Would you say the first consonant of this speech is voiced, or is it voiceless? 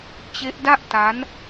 voiceless